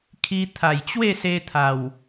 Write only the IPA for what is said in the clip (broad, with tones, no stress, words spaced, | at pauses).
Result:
kʰi˧t̪ʰa˨˩jt͡ɕwe˥˧ se˧ t̪ʰa˨˩w